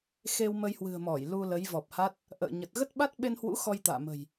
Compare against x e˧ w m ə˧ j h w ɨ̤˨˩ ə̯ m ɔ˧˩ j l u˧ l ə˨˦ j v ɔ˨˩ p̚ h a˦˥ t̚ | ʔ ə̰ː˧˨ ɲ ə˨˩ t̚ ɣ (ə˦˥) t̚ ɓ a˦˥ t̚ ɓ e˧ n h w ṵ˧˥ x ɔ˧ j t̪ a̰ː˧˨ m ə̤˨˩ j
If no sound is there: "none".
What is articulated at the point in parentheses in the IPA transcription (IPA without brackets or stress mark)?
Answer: ə˦˥